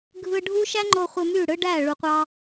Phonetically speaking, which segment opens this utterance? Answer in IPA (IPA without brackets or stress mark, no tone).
ɡʱ